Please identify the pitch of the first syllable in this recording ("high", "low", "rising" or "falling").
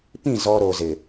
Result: falling